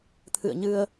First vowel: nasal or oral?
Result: oral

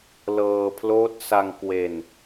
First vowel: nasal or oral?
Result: oral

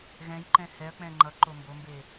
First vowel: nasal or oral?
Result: nasal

